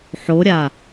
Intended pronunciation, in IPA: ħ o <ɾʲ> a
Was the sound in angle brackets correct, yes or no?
yes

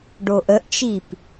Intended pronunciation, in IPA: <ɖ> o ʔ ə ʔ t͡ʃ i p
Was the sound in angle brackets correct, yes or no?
yes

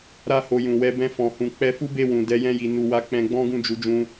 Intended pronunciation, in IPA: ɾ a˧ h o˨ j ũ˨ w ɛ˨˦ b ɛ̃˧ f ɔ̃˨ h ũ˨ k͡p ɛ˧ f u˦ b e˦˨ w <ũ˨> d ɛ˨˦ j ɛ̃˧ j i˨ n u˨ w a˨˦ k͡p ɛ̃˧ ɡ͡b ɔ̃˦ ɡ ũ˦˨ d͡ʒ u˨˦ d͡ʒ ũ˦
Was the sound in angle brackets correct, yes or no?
yes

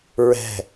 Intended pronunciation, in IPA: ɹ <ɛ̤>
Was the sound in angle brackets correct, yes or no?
yes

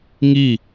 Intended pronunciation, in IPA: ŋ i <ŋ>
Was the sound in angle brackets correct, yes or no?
no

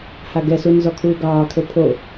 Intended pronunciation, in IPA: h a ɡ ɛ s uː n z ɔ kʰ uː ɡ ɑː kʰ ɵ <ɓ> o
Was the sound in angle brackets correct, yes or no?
no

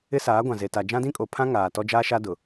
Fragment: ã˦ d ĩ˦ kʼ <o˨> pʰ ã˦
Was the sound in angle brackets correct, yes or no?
yes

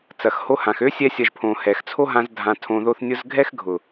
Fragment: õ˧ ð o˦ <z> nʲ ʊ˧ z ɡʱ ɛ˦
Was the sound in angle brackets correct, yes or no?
no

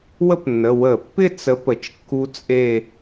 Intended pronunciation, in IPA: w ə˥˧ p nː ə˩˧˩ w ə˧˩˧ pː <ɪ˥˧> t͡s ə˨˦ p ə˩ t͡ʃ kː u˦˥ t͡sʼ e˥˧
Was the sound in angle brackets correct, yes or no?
yes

